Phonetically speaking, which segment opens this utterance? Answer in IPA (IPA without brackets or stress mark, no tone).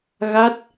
ɣ